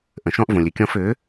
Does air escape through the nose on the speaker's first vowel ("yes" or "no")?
yes